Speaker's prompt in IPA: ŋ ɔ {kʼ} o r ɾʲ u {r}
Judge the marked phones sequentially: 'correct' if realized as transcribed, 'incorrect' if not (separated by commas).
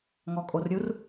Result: correct, correct